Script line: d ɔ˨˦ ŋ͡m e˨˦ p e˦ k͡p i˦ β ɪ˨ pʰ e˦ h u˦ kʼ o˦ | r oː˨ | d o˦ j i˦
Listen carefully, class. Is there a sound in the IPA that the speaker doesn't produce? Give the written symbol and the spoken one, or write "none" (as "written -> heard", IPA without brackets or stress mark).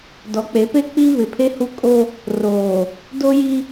ŋ͡m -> k͡p